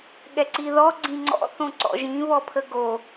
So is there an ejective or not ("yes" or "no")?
no